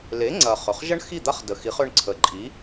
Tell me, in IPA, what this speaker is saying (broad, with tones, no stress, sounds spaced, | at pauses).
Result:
l e˩˥ ŋ͡ǀ ɐ˩ χ œ˩ χ ʒ ɐ˥ ɳ x i˥˩ d̪ a˥ χ d ə˩ x i˩˥ χ œ˧ ɳ ǀʰ ə˩˥ ǃʼ i˩˥